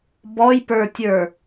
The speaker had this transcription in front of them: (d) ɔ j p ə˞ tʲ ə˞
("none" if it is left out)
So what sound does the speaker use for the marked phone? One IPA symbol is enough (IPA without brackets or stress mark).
b